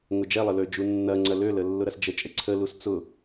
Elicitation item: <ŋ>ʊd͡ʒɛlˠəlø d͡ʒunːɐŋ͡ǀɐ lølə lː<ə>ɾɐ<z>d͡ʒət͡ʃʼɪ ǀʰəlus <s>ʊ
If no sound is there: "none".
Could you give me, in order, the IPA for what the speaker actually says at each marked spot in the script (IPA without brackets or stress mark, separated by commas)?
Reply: ŋ, ʊ, s, t͡s